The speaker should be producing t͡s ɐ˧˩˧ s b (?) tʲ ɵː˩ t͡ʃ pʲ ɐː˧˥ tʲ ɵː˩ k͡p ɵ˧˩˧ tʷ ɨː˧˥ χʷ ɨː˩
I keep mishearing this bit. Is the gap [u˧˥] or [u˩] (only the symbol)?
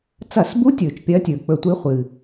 u˧˥